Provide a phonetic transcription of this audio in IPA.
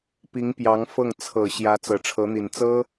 p i˧˥ ŋ p j ɑ˧˥ ŋ f ɤ˥˩ ŋ t͡sʰ ɤ˨˩ ɕ j ä˧˥ t͡s ɤ˨˩ ʈ͡ʂʰ ɤ˧˥ n̪ i˨˩ n t͡s ɤ˥

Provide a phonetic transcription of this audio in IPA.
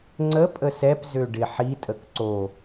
ŋ͡ǀ ə pʼ ə s ɛ p z ø ɖ ɪ ħ i tʼ ə k ǀ o

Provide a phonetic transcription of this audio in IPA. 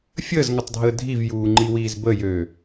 fʲ əː z ŋ ə tˤ dʱ əː dʱ i v j uː ŋ͡ǃ i w iː z b ə j ø

